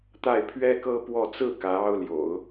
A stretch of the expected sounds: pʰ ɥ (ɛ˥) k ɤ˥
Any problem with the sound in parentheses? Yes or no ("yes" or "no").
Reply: no